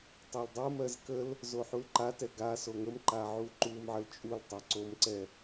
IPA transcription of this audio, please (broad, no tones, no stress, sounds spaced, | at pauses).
tˤ ɛ l dˤ o m ɜ z k ə l | z o ħ u l ǃ a t ɛ ɡ a s o ŋ ə m ǃ a ʕ u ǃ u m ʕ ə l t͡ʃʼ u l tˤ a ǀ o m ǀ ɛ